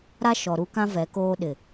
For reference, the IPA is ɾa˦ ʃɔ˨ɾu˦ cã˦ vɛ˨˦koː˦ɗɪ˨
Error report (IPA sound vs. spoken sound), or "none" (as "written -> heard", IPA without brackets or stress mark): c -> k